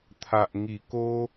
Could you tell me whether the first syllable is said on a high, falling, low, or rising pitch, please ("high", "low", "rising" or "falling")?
low